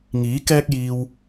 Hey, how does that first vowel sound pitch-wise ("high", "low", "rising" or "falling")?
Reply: rising